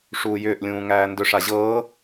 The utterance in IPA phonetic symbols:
ʂuːjʏːʔlʲũː ŋæːndʏʂ aʑɤː

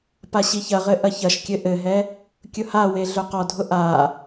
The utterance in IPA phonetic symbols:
paɕiçɐʁɘ ʔɐçɐʃkʲɘ ʔɘɦɛ | kʲʊhawe ɮœqɔdʱʊ ʔa

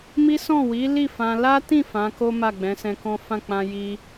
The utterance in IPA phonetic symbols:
mi˦sɔ̃˦˨ wi˨˦li˦˨ fã˧ la˦tĩ˦˨ fã˨˦ko˦ ma˦˨ɡ͡bɛ̃˨˦sɛ̃˧kɔ̃˦ fã˦˨ k͡pã˧ ji˧

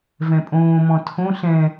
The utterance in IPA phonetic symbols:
vɛ̃pʼõːmɔ̃ tʰõ ɬɛ̃

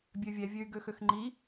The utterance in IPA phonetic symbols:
bʲøvʲɛvʲøy̯ ɡøxøxŋ͡ǃi

